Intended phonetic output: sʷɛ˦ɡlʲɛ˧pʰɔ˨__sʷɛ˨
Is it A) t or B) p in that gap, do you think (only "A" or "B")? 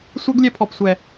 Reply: B